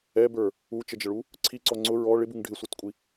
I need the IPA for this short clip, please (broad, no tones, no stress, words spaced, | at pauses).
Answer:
ɛbə˞ | ut͡ʃəd͡ʒəɭu | ǀʰiǀɔ ŋ͡ǀʊ ɹɔ ɭɪbuŋ ɖʱɪsʷə˞tkʷʼi